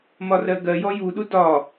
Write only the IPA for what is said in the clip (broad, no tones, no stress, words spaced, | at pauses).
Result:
mɒrɜɡɜjɔ juɗu dɒ